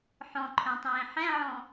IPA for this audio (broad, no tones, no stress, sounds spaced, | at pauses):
ħ ɔ̃ ǃʰ œ̃ tˤ ẽː ħ ɛ̃ ʕ ɔ̃